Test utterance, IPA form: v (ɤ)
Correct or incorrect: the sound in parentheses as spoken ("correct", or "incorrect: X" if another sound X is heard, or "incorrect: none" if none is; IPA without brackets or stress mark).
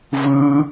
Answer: incorrect: ɯ